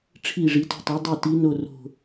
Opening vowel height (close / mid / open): close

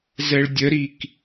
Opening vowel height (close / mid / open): mid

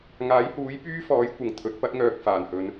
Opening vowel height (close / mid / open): open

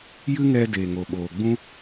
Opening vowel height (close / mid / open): close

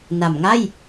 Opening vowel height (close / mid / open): open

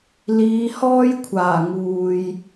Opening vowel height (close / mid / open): close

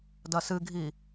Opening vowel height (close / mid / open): open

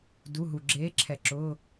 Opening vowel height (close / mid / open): close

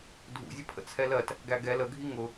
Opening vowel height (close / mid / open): close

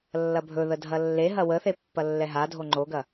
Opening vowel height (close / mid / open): open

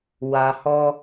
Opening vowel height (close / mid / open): open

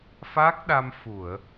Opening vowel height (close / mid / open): open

